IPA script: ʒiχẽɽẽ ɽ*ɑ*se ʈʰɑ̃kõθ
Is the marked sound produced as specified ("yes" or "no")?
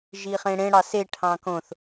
yes